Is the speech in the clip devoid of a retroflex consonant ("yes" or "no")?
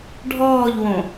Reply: no